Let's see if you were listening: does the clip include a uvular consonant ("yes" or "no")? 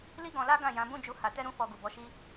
no